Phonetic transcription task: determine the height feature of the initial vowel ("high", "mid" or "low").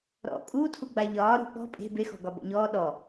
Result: mid